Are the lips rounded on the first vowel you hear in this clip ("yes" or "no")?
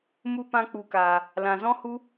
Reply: yes